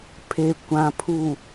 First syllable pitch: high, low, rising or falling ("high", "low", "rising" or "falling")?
low